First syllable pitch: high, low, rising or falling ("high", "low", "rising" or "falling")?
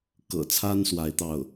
low